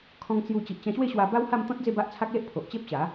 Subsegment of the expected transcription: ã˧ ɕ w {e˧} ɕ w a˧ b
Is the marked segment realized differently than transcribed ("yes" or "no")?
yes